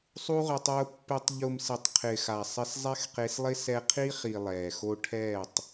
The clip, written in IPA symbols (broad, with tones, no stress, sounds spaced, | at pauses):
sˤ u˧ ʁ ʊ˨ tˤ ʊː˧ pː ɪ˧ tˤ ʎ ʊ˨ m s ɪ˨ tˤ qʰ ɪː˨ x a˨ sˤ ɪ˧ s zˤ ɛ˦ x q e˧ s lˠ ɪ˦ s ɛ˧ qʰ i˦ χ i˨ lˠ ɛː˨ x o˧ ʈʰ ɛː˦˨ tˤ